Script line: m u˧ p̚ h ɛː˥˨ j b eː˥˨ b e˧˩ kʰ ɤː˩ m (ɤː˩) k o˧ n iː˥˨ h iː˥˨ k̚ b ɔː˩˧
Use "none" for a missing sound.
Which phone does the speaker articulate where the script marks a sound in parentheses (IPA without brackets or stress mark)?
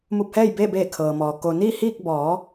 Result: ɔː˩